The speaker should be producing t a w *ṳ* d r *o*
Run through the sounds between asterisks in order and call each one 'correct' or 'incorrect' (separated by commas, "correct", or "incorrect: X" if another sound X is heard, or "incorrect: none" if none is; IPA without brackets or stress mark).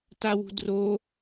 correct, correct